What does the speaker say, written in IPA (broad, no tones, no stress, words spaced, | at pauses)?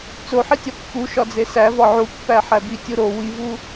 t͡soħitʲɒ pːu ʃɒd͡zesævɒ ʕupːæ ħæbitʲu ɾo wivu